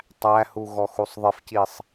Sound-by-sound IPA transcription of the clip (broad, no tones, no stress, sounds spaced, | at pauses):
tˤ æ h u ɣ ɔ x u sˤ ðˤ ɪ f c i sˤ